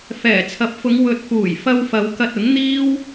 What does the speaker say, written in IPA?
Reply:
f ɛː˨˩ t͡sʰ ɐ˨˥ p̚ f ʊ˨˧ ŋ w ɵ˨ t̚ f uː˨˩ j f ɐ˧ w f ɐ˨˧ w k ɐ˧ t̚ ʊ˨˥ ŋ n̪ iː˥ w

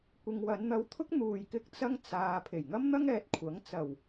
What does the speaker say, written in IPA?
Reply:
kʷ ɪ˨ ŋ w ɐ˨˧ n n̪ ɐ˧ w t̪ʰ ʊ˥ k̚ n̪ uː˧ j k ɪ˥ k̚ t͡s ɐ˥ ŋ t͡s aː˨ pʰ e˨˩ j ŋ ɐ˥ m n̪ ɐ˥ ŋ ɛː˨ t̚ kʷʰ ɐ˨˥ ŋ t͡s ɐ˨˩ w

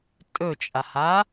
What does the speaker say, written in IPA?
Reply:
tʼ ɵ t͡ʃʼ a h a

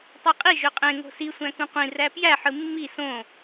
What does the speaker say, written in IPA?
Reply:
tˤ ɯ qʼ i ʒ ø qʼ ẽ ŋ o̤ s i sʷ æ̃ k ũ qʷ ĩ r æ p j æ ħ ɯ mː i s õ

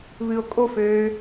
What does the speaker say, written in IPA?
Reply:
β ɨ o̯ kʼ o f øː

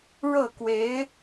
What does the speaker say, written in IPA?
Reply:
ɻ ɤ˥˩ k w e˧˥ ɪ̯

